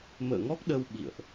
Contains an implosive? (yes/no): yes